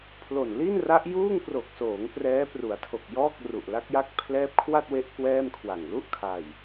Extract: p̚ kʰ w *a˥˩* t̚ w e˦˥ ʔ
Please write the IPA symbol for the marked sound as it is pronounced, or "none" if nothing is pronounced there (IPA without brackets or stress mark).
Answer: a˥˩